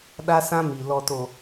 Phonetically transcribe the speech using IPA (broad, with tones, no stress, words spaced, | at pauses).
ɗa˦sã˦mi˨ lɔ˨to˨